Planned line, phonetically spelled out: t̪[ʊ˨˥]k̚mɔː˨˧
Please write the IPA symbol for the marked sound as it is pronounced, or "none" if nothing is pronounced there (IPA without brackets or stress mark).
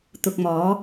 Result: ʊ˨